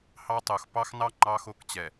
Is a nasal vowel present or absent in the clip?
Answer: absent